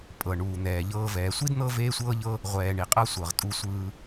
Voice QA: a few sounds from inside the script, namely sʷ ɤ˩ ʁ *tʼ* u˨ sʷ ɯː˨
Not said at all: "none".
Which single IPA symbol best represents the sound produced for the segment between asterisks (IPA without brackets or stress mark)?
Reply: tʼ